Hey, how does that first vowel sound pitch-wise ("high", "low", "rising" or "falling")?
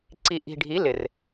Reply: low